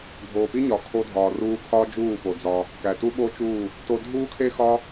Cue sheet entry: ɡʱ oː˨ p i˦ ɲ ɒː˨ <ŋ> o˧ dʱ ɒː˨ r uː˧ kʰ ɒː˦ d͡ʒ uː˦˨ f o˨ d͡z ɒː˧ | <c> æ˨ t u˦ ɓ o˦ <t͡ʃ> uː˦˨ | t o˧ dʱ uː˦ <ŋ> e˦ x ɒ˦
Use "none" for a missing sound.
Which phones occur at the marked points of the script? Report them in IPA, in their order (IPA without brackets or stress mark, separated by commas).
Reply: kʰ, k, t͡ʃ, kʰ